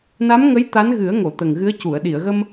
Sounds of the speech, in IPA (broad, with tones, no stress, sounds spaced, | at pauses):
n a˧˥ m ŋ ə˧˥ j t̪ a˧˥ n ɣ ɨ˨˩˦ ə̯ ŋ o˨˩˨ t̪ ə˨˩ ŋ ɣ ɨ˧˥ ə̯ c u˨˩˨ ə̯ ɗ i˨˩˨ ə̯ ɣ ə˧ m